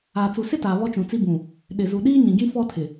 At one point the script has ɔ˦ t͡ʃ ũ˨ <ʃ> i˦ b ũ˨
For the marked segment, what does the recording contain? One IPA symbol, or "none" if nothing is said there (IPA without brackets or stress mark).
t͡s